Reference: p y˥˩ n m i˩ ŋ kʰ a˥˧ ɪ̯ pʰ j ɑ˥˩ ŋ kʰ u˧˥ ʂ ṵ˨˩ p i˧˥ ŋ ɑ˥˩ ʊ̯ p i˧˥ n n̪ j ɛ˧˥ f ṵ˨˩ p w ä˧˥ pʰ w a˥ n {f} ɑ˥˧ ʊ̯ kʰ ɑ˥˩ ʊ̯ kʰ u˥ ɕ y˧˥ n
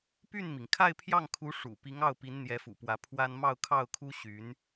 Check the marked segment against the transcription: incorrect: m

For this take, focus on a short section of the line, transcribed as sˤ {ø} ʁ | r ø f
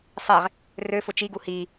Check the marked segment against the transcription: incorrect: e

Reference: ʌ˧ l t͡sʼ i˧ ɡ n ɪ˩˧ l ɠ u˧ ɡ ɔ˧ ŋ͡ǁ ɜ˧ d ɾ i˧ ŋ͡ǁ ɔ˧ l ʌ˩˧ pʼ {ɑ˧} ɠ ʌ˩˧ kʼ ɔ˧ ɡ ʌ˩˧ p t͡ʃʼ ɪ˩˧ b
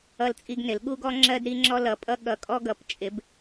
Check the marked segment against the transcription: incorrect: ʌ˧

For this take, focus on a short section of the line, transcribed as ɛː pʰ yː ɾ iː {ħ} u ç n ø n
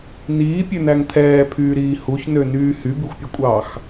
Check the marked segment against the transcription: incorrect: h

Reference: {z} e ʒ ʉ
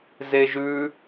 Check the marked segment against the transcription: correct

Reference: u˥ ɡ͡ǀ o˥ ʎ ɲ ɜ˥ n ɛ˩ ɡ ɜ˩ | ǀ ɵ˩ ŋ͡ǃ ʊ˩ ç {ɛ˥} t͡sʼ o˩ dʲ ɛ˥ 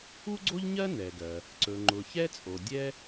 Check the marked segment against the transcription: correct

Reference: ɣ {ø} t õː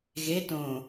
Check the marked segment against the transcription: incorrect: e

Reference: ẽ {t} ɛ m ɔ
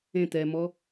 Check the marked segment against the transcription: correct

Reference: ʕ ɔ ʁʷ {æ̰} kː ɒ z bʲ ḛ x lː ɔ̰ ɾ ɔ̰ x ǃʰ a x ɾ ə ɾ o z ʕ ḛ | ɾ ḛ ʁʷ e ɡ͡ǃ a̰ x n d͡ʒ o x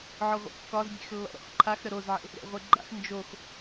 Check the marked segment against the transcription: incorrect: ə̰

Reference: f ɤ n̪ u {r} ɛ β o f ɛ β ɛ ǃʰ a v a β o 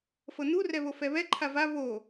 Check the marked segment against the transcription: correct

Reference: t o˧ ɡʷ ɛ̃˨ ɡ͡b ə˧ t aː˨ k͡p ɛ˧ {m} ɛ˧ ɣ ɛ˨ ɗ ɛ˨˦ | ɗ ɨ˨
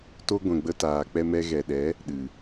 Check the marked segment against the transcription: correct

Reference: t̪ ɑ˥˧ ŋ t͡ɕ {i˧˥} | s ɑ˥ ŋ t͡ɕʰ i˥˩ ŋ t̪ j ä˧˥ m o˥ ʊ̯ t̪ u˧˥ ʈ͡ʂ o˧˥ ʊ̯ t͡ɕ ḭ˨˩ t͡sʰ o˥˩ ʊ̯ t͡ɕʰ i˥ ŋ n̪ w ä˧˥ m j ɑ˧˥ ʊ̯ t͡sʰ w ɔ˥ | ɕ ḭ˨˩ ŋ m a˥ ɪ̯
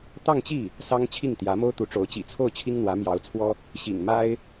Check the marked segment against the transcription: incorrect: i˥˩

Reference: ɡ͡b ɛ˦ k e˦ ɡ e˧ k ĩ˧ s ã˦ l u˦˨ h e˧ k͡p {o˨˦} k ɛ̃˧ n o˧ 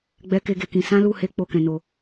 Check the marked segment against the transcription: incorrect: o˦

